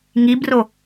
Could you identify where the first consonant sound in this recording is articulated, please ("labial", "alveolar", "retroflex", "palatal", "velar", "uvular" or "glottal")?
velar